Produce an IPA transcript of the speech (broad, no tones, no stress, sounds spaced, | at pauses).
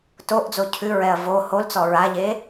t o ʔ d͡z o cʰ ʉ ɹ ɛ ɐ̯ v o h o l t͡s ɔ ɹ a ʎ e